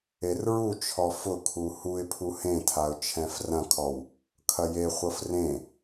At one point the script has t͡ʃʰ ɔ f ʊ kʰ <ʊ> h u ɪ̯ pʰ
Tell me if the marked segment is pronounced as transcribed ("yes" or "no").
no